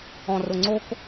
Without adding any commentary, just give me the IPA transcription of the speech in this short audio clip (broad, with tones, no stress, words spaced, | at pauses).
ɔ̃˨rʊ˨ŋ͡ǀo˦k